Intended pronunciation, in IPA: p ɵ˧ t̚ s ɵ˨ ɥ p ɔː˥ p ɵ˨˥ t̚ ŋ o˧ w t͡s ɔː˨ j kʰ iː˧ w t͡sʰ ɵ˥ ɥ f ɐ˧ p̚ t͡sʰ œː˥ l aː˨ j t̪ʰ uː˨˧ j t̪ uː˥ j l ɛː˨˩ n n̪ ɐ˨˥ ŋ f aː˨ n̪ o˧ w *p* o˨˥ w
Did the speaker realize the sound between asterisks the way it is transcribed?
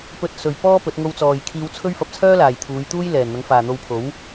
no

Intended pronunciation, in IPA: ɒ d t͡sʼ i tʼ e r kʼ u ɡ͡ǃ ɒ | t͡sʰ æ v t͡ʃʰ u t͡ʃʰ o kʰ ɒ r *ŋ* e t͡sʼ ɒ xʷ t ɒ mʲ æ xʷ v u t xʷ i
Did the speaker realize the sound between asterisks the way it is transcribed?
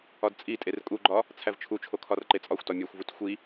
no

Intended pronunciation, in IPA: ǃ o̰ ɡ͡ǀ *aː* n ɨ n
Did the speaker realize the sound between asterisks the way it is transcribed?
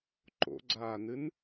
yes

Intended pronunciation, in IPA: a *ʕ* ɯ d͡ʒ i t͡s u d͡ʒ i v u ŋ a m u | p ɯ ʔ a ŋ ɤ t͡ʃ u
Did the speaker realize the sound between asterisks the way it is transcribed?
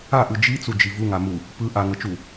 no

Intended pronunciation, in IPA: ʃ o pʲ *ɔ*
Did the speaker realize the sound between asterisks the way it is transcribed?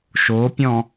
no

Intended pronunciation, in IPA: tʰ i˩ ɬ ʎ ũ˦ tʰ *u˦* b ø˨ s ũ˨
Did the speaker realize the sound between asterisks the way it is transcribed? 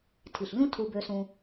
no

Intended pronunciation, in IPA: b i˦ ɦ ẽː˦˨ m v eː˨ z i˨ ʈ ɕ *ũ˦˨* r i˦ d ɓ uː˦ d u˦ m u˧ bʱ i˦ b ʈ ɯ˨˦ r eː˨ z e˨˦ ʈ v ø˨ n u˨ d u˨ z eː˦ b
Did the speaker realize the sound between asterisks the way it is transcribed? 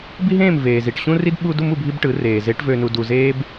no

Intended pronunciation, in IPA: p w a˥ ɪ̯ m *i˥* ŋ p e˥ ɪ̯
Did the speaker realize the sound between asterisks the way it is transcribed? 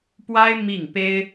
no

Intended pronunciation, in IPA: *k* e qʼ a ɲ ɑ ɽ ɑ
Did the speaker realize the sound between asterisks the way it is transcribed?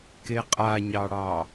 yes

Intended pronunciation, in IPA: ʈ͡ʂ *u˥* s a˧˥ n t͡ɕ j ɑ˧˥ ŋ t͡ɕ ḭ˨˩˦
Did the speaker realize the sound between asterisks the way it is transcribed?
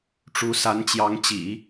no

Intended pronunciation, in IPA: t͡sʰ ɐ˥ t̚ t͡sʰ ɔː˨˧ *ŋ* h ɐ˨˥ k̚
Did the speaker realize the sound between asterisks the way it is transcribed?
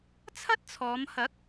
no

